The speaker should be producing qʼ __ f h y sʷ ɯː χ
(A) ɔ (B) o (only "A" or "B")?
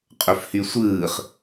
B